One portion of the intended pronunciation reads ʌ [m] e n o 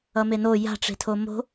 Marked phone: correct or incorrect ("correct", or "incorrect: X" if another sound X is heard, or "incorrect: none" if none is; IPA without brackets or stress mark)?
correct